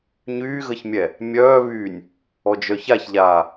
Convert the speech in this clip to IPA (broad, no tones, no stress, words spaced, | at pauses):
ɲyːɣəçmʲɛ | mʲœːβyːnʲ | ɔd͡ʒœçaçʎaː